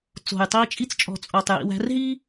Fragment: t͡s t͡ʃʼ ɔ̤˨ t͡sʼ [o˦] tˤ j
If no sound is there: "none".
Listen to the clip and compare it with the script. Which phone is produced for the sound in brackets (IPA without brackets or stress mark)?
o˨